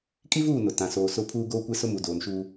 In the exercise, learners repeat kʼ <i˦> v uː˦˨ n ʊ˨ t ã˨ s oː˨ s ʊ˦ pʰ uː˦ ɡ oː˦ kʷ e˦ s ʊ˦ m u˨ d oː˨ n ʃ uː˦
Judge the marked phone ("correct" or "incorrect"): correct